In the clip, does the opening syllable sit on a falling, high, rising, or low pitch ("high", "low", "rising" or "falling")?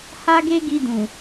high